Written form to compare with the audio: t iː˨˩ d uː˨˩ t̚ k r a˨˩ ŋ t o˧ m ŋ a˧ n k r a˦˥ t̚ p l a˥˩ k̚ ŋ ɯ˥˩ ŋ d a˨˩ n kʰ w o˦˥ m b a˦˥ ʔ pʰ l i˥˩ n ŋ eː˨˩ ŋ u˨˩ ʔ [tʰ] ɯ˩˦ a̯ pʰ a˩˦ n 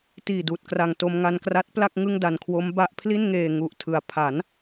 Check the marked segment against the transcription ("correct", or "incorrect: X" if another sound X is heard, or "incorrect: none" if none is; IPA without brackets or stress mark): correct